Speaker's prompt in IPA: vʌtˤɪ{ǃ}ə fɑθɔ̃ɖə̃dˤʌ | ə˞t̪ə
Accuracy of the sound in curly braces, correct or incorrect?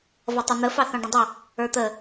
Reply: incorrect